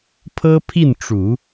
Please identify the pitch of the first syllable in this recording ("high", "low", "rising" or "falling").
high